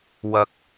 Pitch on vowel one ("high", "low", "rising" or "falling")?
rising